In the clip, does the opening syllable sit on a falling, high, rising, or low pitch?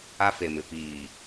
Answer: high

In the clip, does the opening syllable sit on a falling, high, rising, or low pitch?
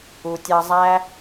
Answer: low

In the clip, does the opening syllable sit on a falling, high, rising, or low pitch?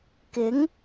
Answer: rising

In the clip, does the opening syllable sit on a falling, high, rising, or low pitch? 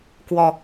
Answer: low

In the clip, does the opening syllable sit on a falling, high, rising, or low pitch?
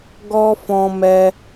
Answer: high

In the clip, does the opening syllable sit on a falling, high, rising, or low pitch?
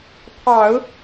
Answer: low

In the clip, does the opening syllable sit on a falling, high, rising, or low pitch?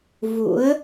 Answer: rising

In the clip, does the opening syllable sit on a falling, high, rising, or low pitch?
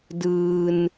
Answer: low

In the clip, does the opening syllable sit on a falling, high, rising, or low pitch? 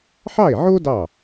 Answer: falling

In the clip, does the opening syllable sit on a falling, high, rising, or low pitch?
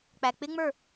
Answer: low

